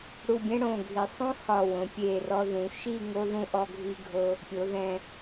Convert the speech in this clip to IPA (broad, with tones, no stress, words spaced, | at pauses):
ɽu˧˩bʲɛ̃˥ɽõ˧˩ ɡʱi˩˧sˤõ˥hɒ˧˩wõ˩˧ pʲe˧˩ rɔ˧ðũ˩˧ʃi˥˧ ŋo˥ðũ˥ ʔɔ˥ɡʱi˥ɡʱo˥ | pʲo˩˧ðɛ̃˧˩